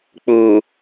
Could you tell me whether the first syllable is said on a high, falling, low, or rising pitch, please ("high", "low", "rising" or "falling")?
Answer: low